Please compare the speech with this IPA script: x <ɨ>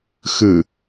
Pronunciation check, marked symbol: correct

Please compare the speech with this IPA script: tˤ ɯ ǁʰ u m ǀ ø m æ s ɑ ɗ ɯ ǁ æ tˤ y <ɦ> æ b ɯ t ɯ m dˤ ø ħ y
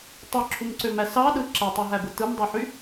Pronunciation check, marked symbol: correct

